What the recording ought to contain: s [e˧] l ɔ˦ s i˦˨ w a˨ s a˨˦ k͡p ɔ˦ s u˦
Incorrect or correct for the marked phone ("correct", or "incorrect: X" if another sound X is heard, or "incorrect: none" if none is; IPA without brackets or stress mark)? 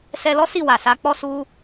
incorrect: ɛ˧